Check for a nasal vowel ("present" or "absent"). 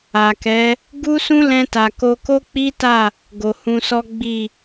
present